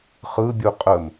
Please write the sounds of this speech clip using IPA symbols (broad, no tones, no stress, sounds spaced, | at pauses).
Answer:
χ ɯ bʲ u qʼ ə m